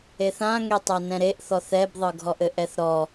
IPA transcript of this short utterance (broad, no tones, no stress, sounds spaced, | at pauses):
e θ ã ŋ e tˤ a n ɛ̃ ɾ e ʔ θ ɔ θ ɛ b ðˤ ɤ ɡʱ ɔ ʔ ɘ ʔ ɛ θ ɾ ɔ